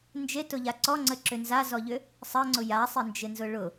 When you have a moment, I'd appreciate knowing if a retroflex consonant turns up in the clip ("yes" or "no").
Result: yes